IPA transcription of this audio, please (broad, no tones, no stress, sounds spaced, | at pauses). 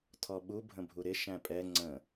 tʰ ɔ ɓ u bʱ ə̃ bʱ u ɾ ɪ ʃ æ̃ pʼ ɛ ŋ͡ǀ ə̃